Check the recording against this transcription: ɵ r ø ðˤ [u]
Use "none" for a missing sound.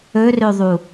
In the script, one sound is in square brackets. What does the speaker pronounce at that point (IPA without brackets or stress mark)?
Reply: u